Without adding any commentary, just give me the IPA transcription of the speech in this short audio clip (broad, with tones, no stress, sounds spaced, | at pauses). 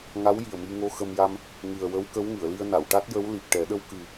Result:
ŋ a˧˥ w j i˨˩ ə̯ m i˧ ŋ o˧ x ə˧ m j a˧ m | ŋ ɨ˨˩ ə̯ w ə˧˥ w k ə˧˥ w ŋ ɨ˨˩˨ ə̯ l i˧ ə̯ n a˨˩˨ w ʈ a˦˥ t̚ j ə˧˥ w l i˨˩ p̚ ʈ ɛ˨˩˦ ɗ ə˧ w k ɨ˨˩